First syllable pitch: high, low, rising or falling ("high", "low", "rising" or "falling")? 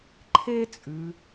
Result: high